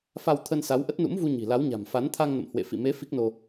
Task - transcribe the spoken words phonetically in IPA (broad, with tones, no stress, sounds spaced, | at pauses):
f a˧ w t̪ʰ ə˧ n s a˨˦ w ʔ ə˦˥ t̚ n ṵ˧˥ m v u˧ ɲ i̤˨˩ l a˨˦ w ɲ a̤˨˩ m f a˨˦ n t̪ʰ a˧ ŋ n ə̰˧˨ m h w ḛ˧˨ f ḭ˧˨ m e˨˦ f i˦˥ k̚ n o˧